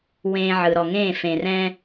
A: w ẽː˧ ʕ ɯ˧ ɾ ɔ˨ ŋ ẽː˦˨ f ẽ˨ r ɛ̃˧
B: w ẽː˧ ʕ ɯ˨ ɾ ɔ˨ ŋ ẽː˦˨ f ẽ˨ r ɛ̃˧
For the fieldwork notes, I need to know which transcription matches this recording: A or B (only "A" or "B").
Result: B